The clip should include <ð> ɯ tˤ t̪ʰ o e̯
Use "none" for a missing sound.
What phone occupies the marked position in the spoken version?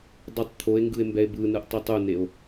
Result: dˤ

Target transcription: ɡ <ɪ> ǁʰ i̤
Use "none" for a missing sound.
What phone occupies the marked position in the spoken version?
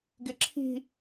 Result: ɪ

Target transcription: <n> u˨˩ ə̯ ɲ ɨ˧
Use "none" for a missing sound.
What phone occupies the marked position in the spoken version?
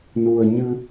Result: n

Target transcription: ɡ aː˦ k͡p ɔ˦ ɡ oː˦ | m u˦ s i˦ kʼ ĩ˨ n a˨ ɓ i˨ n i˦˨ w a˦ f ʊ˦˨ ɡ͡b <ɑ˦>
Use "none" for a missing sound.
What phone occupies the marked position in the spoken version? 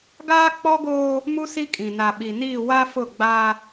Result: a˦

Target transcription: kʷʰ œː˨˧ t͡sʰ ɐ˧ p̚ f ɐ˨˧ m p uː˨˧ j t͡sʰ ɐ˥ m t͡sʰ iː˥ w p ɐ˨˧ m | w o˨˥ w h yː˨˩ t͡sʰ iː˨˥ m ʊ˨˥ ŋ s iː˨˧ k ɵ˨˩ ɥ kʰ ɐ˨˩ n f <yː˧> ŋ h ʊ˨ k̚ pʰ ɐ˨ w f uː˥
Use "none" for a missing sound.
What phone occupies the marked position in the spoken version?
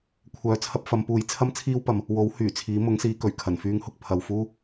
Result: yː˧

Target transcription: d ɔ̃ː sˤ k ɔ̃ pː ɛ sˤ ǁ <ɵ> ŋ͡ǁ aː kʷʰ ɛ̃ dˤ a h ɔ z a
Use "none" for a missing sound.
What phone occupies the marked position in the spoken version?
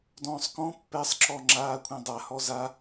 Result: ɔ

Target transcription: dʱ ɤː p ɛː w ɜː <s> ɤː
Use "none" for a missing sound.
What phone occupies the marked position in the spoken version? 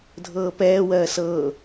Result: s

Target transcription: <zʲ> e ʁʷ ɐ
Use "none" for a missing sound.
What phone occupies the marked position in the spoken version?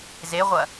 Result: z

